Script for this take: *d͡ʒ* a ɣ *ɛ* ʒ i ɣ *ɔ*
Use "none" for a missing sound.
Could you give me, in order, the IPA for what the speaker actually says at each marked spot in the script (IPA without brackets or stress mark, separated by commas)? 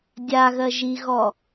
dʲ, ɜ, ɔ